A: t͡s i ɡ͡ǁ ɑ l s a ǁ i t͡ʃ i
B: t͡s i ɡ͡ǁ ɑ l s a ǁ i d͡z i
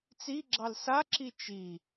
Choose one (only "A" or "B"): A